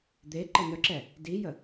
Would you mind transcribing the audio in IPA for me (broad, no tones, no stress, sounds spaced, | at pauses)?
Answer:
d̪ e ǃ ə n œ ǁ ɛ | d i j ə